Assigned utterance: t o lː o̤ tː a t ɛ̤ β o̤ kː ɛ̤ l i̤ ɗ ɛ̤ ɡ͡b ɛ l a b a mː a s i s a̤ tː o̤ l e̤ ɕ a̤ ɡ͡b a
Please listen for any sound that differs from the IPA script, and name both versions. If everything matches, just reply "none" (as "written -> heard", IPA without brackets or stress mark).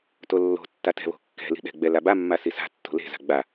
ɕ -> z